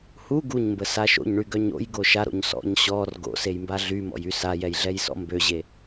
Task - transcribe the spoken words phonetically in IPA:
h u ɡ u ɲ m b ə s a ʃ o̰ ɲ ɳ y ɡ œ ɲ o̰ j ɡ o ʃ a ɾ o̰ ɲ s ɔ̰ ɲ ɕ ɔ r ɡ o̰ s e j m b a ɮ y m ɔ̰ j y s a j ɛ j ɮ ɛ j s ɔ̰ m b ø ʑ e

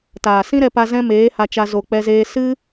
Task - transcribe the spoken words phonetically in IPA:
t aː˨ s ĩ˦ ɾ ɛ˧ p a˧ z ɛ̃˦ m eː˨˦ h a˧ t͡ʃ a˧ z o˨ k͡p ɛ˧ z eː˧ s ɨ˦

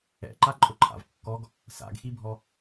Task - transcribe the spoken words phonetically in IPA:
ɛ̰ ǃ a ǃʼ ʊ ǃʰ a̰ v kː ɔ ɡ | s a̰ ɡ x i bʱ ɔ

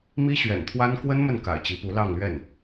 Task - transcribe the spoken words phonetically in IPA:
m i˥ ɕ ɥ ɛ̰˨˩ n t̪ʰ w a˥ n k w ə˥ n m ə˥˩ n k a̰˨˩ ɪ̯ t͡ɕ i˧˥ p u˧˥ l ɑ˥˧ ŋ l ɥ ɛ˥˩ n

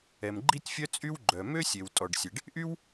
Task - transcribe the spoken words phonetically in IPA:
ɛ˩ m ɡ͡ǃ i˥ tʲ fʲ œ˥ t͡sʼ y˥ w ɡ͡ǃ œ˩ m ø˥ sʲ e˩ w tʼ ɔ˩ ɖ sʲ e˩ ɖ | ʔ y˥ w

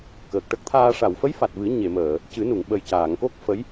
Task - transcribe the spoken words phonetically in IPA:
k əː˨˩ k̚ ʈ ə˦˥ k̚ t̪ʰ aː˧ ʂ a˨˩˨ w f ə˧˥ j f a˨˩ t̚ v ɨ˨˩˦ ɲ e˨˩˨ m əː˨˩˨ | c ɨ˨˩˦ n u˨˩˨ ŋ ɓ ə˨˩ j c aː˨˩˨ ŋ k o˦˥ k̚ f ə˧˥ j

